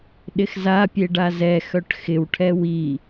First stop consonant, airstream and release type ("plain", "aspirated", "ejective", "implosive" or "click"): implosive